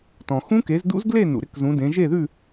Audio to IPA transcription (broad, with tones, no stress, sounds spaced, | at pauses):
t ɔ̃˨ x ũ˦˥ k e˨˦ z d ṵ˦˥ z ɡ l e˥˧ n ṵ˨ ɾ ɪ˦˥ k z ũ˨˦ d ẽ˨˦ ʒ e˥˧ ð ʉ˥˧